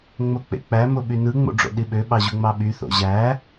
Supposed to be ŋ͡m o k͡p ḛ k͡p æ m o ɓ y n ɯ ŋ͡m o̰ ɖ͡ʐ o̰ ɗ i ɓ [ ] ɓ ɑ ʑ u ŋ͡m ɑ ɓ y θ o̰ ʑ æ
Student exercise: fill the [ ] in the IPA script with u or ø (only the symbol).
ø